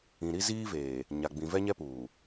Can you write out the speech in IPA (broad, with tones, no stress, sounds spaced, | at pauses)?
ĩ˨ ɾ i˦ z iː˦ v eː˨ | ɲ a˨ ɡ͡b ĩ˨ v ɛ˦ ɲ ɛ˦ p uː˨